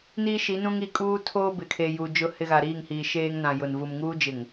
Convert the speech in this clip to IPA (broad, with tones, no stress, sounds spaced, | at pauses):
n iː˦ ʃ i˨˦ n ũ˦ ŋ i˨ kʼ uː˦ tʰ oː˦ b ɪ˨ kʰ e˨ j u˨ d͡ʒ ʊ˦˨ h ɪ˦ ɣ a˨ ɾ iː˦˨ ŋ h iː˨ ʃ eː˦ ŋ n ã˨ j ʊ˨ n v u˨ m ŋ uː˦ d͡ʒ ɪ˨ ŋ